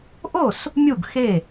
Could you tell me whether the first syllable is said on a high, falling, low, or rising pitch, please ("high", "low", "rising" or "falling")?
falling